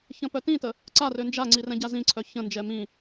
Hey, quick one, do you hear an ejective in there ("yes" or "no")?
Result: no